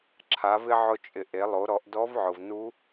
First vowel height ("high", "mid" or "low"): low